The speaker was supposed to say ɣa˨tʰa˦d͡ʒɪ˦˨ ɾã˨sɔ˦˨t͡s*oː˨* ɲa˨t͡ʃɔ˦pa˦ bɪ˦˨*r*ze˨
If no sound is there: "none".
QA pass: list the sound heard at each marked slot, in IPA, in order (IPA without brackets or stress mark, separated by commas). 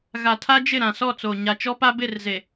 oː˨, r